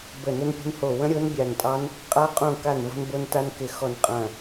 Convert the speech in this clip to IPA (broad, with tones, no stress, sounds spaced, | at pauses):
b ə˦˨ n ə˦˥ n pʲ ə̤˦˥ n h o˦˨ w ə̃˦˥ ɾʲ o˦˥ n bʲ a˦˨ n tʼ ɑ˦˥ n | qʼ a˦˥ qʼ õ˦˨ k a˦˨ n v o̤˦˥ n b o˦˥ n t a˦˥ n k ɪ˦˨ x ɔ˦˨ n qʼ ɐ̃˦˨